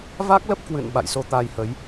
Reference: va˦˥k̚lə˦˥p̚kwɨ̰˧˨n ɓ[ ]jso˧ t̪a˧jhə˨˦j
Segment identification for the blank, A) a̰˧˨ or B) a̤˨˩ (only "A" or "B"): A